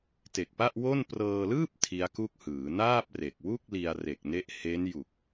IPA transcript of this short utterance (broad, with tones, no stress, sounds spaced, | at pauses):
t e˨˩ k̚ p a˥˩ ʔ w o˥˩ n p r ɤː˧ l ɯː˥˩ p̚ tʰ i˦˥ a̯ k u˥˩ k̚ h ɯː˩˦ n aː˥˩ p̚ r e˨˩ k̚ w u˥˩ k̚ l i˧ a̯ r e˨˩ k̚ n e˦˥ ʔ h e˦˥ n j u˨˩ k̚